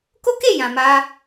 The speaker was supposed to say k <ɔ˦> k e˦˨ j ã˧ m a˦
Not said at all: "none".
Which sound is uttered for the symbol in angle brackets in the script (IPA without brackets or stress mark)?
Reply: o˦